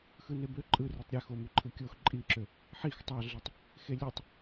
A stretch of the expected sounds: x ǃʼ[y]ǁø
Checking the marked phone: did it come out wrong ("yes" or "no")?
yes